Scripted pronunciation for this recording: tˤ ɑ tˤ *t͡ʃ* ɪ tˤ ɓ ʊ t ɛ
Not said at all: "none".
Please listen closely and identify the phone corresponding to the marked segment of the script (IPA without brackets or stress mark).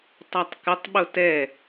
k